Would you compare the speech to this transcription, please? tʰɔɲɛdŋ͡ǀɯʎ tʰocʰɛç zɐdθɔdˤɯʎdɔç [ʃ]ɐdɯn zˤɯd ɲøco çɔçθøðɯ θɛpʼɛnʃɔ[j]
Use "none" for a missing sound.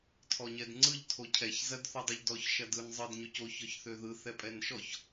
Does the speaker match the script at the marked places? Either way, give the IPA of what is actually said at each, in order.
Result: ʃ, ç

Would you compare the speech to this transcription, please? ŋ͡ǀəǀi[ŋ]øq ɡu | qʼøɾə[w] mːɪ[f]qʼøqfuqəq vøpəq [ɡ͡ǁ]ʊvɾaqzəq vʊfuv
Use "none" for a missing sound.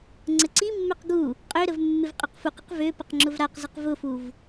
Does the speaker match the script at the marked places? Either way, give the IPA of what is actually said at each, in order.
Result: mː, v, v, ŋ͡ǁ

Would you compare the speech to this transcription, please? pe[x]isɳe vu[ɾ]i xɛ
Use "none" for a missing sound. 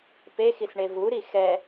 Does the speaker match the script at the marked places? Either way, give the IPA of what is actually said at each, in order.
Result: x, ɾ

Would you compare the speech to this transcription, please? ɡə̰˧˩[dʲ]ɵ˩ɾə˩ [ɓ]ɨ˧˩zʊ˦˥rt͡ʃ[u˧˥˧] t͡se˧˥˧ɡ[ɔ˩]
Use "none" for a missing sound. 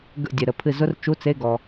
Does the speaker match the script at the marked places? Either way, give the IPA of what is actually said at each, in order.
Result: dʲ, pʰ, u˧˥˧, ɔ˩

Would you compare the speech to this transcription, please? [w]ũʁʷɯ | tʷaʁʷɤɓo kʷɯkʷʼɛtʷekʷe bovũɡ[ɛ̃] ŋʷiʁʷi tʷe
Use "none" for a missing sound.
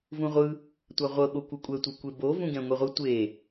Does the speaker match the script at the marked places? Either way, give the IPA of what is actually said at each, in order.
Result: v, ɛ̃

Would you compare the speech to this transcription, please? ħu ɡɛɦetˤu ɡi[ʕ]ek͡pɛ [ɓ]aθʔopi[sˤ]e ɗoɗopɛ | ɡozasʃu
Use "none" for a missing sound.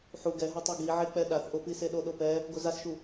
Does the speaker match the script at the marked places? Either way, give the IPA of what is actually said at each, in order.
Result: ʕ, ɗ, s

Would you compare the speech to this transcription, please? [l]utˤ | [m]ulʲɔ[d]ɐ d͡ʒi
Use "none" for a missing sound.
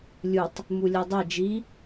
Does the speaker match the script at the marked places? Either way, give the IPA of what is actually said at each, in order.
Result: lʲ, m, dˤ

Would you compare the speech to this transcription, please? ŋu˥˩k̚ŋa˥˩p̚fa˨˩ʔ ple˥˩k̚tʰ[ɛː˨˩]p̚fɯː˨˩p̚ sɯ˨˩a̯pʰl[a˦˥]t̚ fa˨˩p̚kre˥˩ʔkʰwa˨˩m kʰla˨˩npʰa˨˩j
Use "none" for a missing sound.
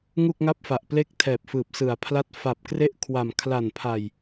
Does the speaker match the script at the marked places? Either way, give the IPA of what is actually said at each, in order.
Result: ɛː˨˩, a˥˩

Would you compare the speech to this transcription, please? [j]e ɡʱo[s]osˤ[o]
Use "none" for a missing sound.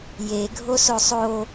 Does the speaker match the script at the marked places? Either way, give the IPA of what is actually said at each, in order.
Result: j, s, o

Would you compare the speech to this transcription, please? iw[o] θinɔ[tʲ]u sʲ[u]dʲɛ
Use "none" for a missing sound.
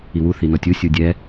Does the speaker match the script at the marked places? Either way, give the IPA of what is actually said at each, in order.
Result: u, tʲ, u

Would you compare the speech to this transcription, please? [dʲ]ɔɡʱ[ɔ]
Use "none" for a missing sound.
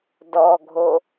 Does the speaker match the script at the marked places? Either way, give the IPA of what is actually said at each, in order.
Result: d, o

